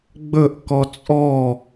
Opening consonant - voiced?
yes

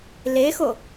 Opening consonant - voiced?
yes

